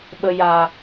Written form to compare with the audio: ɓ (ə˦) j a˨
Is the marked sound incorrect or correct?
incorrect